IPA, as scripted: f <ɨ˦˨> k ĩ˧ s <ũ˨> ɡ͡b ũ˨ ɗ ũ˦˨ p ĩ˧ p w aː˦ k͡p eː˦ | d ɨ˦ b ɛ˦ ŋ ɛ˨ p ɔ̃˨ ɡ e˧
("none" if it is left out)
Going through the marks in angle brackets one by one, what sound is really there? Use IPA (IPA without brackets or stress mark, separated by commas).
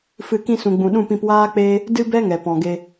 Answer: ɨ˦˨, ũ˨